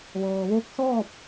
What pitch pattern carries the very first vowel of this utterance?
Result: low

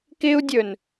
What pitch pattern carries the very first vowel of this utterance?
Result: high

